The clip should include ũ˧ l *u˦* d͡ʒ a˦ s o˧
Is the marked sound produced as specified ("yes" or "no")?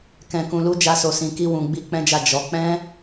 yes